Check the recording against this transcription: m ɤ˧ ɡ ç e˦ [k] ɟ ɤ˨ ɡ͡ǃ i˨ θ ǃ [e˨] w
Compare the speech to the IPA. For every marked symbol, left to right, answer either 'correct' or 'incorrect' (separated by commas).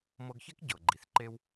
correct, incorrect